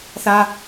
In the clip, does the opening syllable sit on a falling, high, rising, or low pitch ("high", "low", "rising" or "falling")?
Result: high